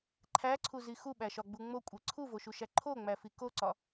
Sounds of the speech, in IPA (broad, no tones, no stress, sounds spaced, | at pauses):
ǃʰ æ ǀʰ u z i x u ɓ æ ʃ ɒ ɡ͡b u ŋ͡m o kʷʼ e ǀʰ u v o ʃ u ʃ æ ǃʰ o ŋ͡m æ f i k o ǀ ɒ